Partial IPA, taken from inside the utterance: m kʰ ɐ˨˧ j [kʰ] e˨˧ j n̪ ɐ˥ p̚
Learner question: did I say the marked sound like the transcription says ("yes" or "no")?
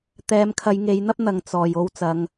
no